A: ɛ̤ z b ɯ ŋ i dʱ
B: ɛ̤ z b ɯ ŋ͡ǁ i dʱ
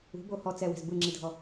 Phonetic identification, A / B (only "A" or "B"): B